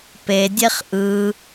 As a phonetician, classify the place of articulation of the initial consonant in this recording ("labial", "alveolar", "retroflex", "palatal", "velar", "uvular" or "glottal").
labial